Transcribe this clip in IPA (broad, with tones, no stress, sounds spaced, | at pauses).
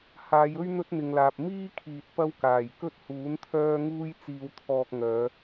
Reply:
h aː˨˧ j ɵ˥ ɥ n̪ ɵ˥ t̚ n̪ ɪ˨ ŋ l aː˨ p̚ m iː˥ kʰ iː˨ t̚ p ɐ˥ w k aː˨˩ j k ɵ˥ t̚ h uː˨˥ n t̪ʰ œː˥ ŋ uː˥ j t͡s iː˧ w t̪ʰ ɔː˧ k̚ ŋ œː˨˧